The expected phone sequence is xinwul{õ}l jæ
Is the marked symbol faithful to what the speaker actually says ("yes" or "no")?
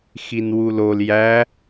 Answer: no